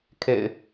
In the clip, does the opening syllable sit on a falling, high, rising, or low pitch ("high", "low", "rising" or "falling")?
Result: low